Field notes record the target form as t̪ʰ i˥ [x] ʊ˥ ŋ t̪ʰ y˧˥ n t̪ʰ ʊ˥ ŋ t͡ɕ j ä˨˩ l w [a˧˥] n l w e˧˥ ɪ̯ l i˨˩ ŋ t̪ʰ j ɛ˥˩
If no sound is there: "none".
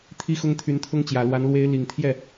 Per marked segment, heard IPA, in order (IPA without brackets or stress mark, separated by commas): x, a˧˥